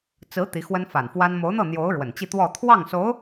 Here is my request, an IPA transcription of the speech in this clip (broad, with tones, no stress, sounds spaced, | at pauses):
t͡s ɹ̩˧˥ t̪ i˧˥ x w ə˥ n f a˨˩ n f w a˥ n m o˧˥ ʊ̯ n̪ ɤ˥˩ n̪ j o˧˥ ʊ̯ ɻ w ə˨˩ n t͡ɕ i˥˧ t̪ w ɔ˥˧ t̪ʰ w ɑ˥˩ ŋ s o˧˥ ʊ̯